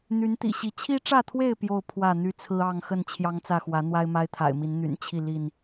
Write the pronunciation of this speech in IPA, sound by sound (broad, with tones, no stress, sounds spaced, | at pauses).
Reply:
n̪ y˨˦ n t̪ ḭ˨˩ ɕ i˨˦ t͡ɕʰ i˦ ʈ͡ʂ ä˥˨ t̪ʰ w e˥˨ ɪ̯ p j o˥˨ ʊ̯ pʰ w ä˥˨ n̪ y˦ t͡sʰ ɹ̩˦ ɑ˥˨ ŋ x ə˥˨ n t͡ɕʰ j ɑ˦ ŋ t͡s ä˥˨ x w ä˨˦ n̪ w a˦ ɪ̯ m a˦ ɪ̯ t̪ʰ a̰˨˩ ɪ̯ m i˨˦ n n̪ y̰˨˩ n t͡ɕʰ i˥˨ l i˥˨ n